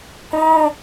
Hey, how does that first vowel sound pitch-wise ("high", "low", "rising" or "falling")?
high